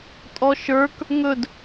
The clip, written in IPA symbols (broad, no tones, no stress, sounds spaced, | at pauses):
tʼ ɔ ʃ ə˞ k | ŋ ɵ d